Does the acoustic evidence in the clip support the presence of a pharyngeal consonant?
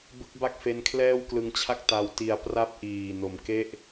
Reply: no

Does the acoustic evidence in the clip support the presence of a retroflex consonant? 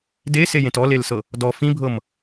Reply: no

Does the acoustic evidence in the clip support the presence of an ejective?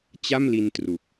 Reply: no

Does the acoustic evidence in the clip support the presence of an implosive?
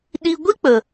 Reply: yes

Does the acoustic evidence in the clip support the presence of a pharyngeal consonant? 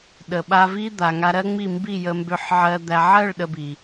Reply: yes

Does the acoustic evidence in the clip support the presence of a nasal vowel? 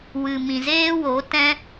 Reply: yes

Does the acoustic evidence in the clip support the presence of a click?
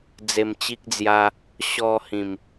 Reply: no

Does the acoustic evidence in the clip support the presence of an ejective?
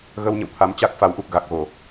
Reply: no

